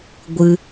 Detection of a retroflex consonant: absent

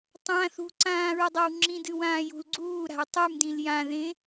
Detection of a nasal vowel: present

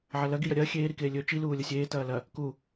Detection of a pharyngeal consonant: present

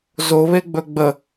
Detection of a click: absent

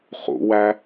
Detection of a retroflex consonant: absent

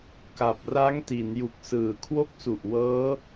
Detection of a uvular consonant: absent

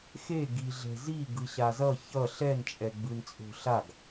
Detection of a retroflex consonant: absent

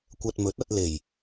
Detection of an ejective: absent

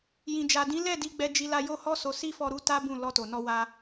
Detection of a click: absent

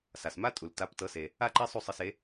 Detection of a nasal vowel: absent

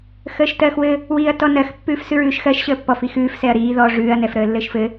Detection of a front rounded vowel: absent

